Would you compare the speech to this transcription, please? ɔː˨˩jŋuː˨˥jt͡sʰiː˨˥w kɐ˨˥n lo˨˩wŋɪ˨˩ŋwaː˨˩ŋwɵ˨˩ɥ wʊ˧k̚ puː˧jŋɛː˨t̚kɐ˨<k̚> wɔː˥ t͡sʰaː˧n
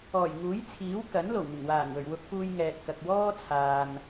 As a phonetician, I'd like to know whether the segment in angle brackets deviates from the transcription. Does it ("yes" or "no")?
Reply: no